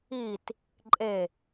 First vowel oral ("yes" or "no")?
yes